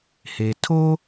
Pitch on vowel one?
low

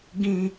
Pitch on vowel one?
high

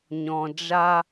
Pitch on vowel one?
low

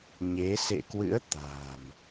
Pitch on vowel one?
rising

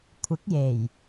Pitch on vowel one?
rising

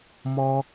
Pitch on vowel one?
high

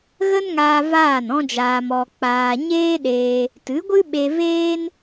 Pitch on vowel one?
high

